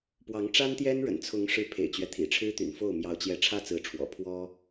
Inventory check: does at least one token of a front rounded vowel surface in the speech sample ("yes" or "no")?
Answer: yes